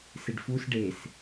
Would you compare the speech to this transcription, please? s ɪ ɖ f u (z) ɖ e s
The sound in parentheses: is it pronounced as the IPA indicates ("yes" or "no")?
no